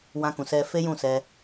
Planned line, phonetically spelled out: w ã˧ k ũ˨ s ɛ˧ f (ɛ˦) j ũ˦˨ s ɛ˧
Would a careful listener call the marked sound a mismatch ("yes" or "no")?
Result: yes